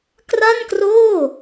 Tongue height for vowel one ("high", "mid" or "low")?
low